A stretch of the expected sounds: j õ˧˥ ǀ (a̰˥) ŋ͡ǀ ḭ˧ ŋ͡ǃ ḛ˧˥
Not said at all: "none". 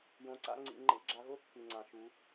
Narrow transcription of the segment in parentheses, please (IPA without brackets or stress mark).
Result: a̰˥